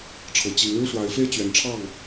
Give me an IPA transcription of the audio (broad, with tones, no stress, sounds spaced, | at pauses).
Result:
ʈ͡ʂʰ ɤ˨˩ t͡ɕ i˧˥ ŋ ɻ u˥ ʂ w a˧˥ ɪ̯ f e˥ ɪ̯ t͡ɕ ɥ ɛ˧˥ n ʈ͡ʂʰ ɑ˥˩ ŋ